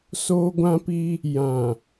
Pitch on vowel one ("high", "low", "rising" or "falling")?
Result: high